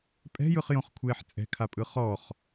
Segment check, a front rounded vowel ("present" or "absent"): absent